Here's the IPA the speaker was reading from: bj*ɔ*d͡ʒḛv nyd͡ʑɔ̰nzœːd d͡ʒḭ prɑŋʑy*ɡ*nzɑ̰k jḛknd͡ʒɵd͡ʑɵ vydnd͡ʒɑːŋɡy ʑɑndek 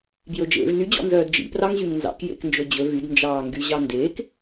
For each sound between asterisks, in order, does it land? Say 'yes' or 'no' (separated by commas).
no, no